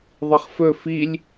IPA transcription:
ðˤ i χ f ɵ f i lʲ

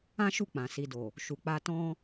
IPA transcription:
ã˦ ʃ u˦˨ k͡p ã˨ s i˨ d o˨ | ʃ u˨ k͡p a˧ t ɔ̃˦

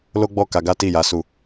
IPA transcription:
l o˦ ɡ͡b ɔ˦˨ k a˧ ɡ a˦ t i˦˨ j a˨˦ s u˦˨

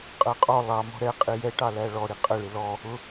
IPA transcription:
qʼ ɜ qʼ ɔ lˠ ɑ m ɔ̤ ɾ ɛ qʼ i j ɛ ʈ ɑ l æ ɭ ɔ ɾ i qʼ ə ɭ ɪ l ɔ | ʊ

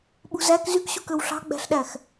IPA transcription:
ɓ ṳ z æ k z y k ɕ u k ø w ɬ ɑ̤ ɡ͡b æ̤ ɬ ɗ æ x

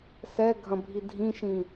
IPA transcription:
s ɛ ɡʱ ɐ̃ bʱ i dʱ ĩ ʃ ĩ

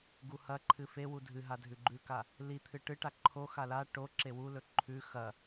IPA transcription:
ɡ u h ɐ ǃʰ ɨ f e w u dʱ ɨ ɦ a dʱ ʉ ɡ͡ǃ ʉ k a | l i t̪ʰ ɨ ʈ ɨ ʈ a ǃʰ o x a l a ʈ o ǁ e w u l ɵ ǃʰ ʉ x ɐ

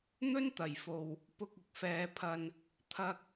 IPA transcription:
n̪ ɵ˥ n t̪ ɐ˨˩ j f o˨ w | p ʊ˧ k̚ ɪ˨ k̚ f ɛː˨˧ pʰ ɐ˧ n | t̪ʰ ɐ˧ k̚

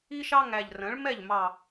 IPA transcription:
i˥ ʃ ɑ˥ ŋ æ˧˩ ʎ r ə̃˩˥ ɭ m ɛ˥˩ ʎ m ɑ˧˩

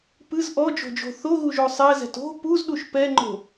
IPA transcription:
p ɨ z ʔ ɔ d͡ʒ o̤ d͡ʒ o̤ θ o ɣ u ʒ o sˤ ɛ z ɛ̤ t o̤ p u z ɗ u ʃ p ɛ ŋ͡ǃ o̤

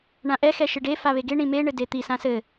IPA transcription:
ɳ ã ʔ ɛ x ɛ ʃ ɨ ɖ e f a β e ɡ e ɳ ĩ m e ɳ ɘ d e t̪ i s ã s ɘ

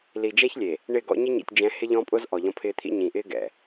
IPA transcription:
l i˨ d͡ʒ ɛ˦ ç lʲ e˨ | ɳ ɪ˦˨ ɡ ɔ̰˦ ɲ ɪ˦ ɲ ḭ˨ tʲ d͡ʒ ɛ̃˨˦ h ɪ˦ ʎ ɔ̃˦ pʼ ʊ˦ z ʔ ɔ˨ ʎ ɔ̃˦ pʰ ɪː˦ t̪ʰ ḭ˦ ɲ ĩ˨ ʔ ɪː˦ ɡ ɛ̰˨

